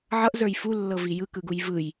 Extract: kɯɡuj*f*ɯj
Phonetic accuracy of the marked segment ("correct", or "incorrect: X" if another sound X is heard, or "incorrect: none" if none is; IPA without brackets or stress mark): incorrect: v